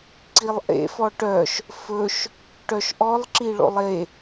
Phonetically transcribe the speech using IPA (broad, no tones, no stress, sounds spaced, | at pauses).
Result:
ǀ i lˠ ʔ ḛ f ɔ ʈ œ ʃ | f ɵ ʃ | ʈ œ ʃ ʔ ɔ lˠ ǁ i ɭ o̰ lˠ e